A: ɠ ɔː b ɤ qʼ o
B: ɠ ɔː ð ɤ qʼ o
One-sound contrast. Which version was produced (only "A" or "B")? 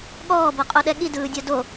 A